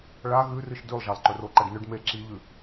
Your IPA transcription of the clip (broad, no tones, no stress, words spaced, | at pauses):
ɭa ɣʉrɨʃ dʉlˠʒalˠǃɵ roǃɐɖnɵɖ me ǁiʎʉ